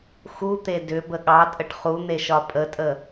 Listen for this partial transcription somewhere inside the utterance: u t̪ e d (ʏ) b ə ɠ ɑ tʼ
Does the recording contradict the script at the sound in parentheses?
no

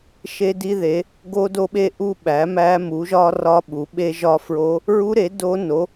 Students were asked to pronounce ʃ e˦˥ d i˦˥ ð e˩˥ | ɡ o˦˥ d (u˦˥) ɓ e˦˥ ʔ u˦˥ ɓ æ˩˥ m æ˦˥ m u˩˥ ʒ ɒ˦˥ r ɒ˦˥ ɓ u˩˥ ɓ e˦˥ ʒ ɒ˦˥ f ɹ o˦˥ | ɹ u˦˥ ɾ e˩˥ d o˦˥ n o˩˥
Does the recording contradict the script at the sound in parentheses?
yes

